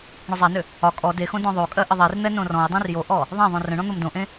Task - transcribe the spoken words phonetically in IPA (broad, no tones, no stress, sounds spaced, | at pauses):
ɳ ʏ zˤ a n ʏ | ɒ kʼ ɔ d e x õ d ɔ̃ ðˤ o kʼ ɜ ʔ ə ðˤ e r n̪ ɛ n õ r ɔ̃ j dˤ ẽ r j o ʔ ɔ | ðˤ ã ðˤ õ r ə̃ ɳ ɔ̃ n̪ o m d õ ʔ ẽ